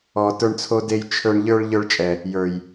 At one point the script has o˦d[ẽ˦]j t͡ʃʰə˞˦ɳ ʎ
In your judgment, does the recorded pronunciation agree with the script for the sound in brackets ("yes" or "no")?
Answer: no